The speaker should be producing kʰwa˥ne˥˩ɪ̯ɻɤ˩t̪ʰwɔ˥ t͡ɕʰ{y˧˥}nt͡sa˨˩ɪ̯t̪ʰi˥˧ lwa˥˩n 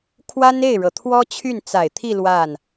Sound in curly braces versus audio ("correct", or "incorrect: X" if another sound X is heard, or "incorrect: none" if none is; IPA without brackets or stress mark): incorrect: y˥˩